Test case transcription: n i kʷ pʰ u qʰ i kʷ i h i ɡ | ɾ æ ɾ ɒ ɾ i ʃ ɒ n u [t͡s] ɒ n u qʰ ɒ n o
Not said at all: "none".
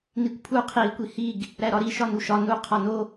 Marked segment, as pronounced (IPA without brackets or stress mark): ʃ